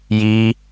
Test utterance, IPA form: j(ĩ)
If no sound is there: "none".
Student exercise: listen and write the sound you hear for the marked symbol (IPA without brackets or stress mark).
i